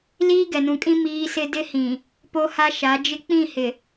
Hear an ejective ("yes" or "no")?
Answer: yes